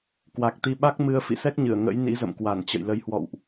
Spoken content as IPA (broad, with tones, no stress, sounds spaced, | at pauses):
k w a˨˩ k̚ t̪ i˧ ɓ a˦˥ k̚ m ɨ˧ ə̯ f ḭ˧˨ s ɛ˦˥ k̚ ɲ ɨ˧˩ ə̯ ŋ ə̰˧˥ j n ḭ˧˥ z ə̰˧˨ m k w a˧˩ n t͡ɕ ə̰˧˨ j l ə˨˦ j h w ɔ̰˧˨ w ʔ